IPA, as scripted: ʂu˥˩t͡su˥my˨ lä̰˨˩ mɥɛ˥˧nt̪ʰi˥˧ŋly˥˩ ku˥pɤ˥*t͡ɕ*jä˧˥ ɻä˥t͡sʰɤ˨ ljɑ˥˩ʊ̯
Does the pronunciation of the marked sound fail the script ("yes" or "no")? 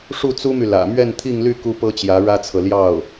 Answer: no